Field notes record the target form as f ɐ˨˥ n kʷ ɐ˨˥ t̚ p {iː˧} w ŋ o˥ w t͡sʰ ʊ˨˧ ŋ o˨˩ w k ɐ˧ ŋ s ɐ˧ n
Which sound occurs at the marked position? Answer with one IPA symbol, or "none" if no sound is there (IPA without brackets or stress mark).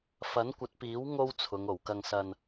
iː˨˥